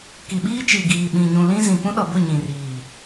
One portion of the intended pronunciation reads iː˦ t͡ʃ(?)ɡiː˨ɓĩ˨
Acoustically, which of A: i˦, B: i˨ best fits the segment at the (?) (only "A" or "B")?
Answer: B